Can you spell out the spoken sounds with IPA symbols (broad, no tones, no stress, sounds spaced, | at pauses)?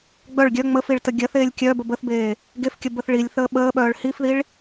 ɡ͡b œ ɭ ɡʲ œ ŋ͡m ə f i ɭ t ə ɡʲ ɜ θ eː lʲ kʲ œ b ə b ə θ b eː | ɡ e f kʲ ə b ə θ ɭ i lʲ θ əː ɓ əː ɓ œː ɭ h i f ð i ɭ